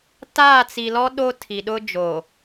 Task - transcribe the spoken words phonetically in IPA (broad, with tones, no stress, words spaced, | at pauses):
taː˦˨t͡si˨lɔ˦ ɗo˦tʰi˨ɗʊ˦ d͡ʒo˨